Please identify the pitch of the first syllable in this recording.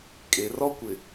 low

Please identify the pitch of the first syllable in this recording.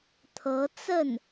rising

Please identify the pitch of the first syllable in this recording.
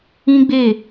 high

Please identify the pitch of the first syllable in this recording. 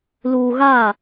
low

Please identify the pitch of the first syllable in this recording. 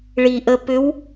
low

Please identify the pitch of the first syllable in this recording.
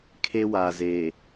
high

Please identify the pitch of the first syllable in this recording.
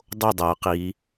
falling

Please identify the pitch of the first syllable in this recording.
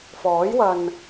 rising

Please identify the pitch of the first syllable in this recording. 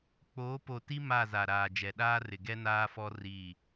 rising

